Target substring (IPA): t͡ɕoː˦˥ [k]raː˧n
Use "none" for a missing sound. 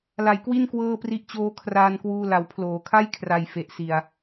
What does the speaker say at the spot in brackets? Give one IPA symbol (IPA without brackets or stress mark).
kʰ